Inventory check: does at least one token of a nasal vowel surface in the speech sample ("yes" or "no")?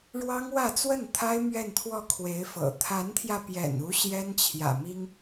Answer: no